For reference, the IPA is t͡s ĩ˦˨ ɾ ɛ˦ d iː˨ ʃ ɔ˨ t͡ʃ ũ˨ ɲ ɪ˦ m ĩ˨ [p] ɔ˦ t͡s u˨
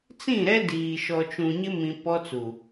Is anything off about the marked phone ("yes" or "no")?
no